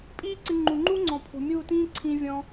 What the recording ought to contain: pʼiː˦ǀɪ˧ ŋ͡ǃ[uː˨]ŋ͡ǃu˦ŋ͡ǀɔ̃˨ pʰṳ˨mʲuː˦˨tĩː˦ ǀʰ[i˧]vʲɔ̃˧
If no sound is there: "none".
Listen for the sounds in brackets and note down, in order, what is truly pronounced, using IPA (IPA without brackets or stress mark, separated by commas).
u˨, ĩ˧